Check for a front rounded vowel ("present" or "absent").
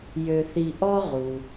present